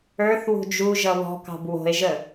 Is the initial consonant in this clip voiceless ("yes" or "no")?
yes